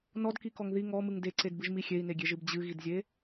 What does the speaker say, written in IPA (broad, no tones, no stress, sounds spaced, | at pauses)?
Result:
n ɔ d k i k ɔ ŋ ð i ŋ ɔ m ɨ ŋ d e ǀ e d b ɨ ʒ m i xʲ e i̯ n e ɡʲ e ʒ ɨ b d͡ʑ ɨ ɣ i d zʲ e